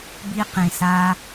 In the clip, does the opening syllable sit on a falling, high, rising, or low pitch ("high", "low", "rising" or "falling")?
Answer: high